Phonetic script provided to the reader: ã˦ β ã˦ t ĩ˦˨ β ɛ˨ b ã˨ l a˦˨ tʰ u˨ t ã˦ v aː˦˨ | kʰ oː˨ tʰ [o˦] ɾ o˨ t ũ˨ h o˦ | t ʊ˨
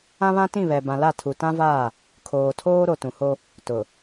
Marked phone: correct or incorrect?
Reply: incorrect